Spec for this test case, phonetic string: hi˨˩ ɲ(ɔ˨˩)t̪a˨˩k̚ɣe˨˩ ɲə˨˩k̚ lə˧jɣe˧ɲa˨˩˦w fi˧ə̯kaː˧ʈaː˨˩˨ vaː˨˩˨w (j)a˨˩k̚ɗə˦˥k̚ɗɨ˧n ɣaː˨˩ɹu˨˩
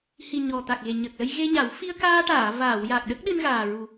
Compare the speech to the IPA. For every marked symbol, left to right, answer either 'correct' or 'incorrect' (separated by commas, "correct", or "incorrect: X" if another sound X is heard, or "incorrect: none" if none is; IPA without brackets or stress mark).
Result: correct, correct